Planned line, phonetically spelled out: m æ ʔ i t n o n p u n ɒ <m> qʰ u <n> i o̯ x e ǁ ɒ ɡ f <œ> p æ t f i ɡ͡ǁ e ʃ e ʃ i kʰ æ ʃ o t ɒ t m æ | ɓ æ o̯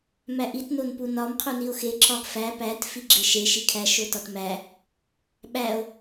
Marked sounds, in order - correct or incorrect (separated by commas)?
correct, correct, incorrect